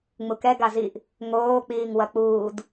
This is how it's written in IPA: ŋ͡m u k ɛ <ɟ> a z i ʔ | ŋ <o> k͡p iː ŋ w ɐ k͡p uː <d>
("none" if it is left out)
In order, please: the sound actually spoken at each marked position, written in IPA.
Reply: ɡ, oː, d

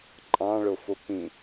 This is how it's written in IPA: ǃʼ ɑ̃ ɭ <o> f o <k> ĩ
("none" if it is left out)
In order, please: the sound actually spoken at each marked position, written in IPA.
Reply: o, p

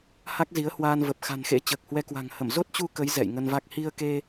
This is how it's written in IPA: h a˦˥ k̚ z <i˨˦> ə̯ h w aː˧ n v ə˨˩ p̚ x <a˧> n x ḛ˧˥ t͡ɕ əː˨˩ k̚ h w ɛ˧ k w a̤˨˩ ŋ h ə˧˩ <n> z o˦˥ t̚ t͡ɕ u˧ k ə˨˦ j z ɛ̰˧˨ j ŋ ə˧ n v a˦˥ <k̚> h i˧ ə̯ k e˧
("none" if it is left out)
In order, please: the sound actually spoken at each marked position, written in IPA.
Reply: i˨˦, a̤˨˩, m, k̚

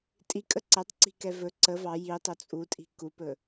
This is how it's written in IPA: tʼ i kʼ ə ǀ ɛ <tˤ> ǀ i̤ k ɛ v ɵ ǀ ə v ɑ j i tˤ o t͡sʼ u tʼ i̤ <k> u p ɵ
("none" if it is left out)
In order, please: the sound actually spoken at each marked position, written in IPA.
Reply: tˤ, k

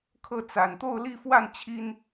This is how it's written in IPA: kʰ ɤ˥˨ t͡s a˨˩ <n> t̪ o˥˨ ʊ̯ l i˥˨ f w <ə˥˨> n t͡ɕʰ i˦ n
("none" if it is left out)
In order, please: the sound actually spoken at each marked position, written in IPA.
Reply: n, a˥˨

